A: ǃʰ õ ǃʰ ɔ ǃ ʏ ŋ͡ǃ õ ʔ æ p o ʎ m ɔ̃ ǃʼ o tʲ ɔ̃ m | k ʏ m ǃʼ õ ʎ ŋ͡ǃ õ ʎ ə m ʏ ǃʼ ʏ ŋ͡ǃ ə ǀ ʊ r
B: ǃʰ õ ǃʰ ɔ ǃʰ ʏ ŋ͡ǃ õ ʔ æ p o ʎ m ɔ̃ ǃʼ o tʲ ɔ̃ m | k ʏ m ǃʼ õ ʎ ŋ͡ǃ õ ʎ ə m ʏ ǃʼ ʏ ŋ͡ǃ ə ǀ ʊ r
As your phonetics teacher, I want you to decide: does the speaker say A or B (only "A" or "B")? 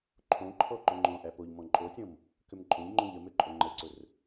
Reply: A